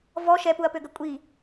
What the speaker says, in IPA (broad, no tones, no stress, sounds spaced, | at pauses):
v ɔ ʃ ɛ p u ɐ̯ p ø ɡ ə kʷʼ i